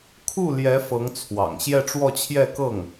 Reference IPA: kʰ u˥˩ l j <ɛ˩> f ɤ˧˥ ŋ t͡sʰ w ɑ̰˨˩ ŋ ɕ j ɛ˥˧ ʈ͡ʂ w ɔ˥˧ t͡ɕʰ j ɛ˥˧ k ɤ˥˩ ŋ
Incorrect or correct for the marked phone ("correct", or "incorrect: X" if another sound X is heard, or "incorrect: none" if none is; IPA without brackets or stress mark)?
incorrect: ɛ˧˥